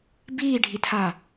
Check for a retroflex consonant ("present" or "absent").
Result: present